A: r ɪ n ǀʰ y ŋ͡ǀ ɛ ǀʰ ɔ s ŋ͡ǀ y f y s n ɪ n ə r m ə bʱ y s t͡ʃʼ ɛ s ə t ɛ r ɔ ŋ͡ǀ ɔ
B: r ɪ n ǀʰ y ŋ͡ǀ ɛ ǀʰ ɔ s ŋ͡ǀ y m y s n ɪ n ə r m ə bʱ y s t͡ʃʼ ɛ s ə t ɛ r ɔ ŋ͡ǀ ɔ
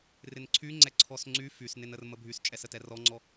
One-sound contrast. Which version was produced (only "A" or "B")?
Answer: A